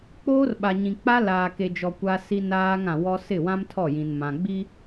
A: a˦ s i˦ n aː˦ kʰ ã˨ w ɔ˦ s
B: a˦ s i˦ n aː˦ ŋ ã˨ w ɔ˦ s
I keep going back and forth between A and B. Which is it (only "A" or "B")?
B